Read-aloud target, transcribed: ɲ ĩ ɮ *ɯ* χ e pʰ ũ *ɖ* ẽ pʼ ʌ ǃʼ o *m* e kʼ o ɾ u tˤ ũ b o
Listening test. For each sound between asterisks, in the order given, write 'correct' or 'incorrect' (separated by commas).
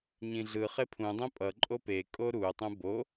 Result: correct, incorrect, incorrect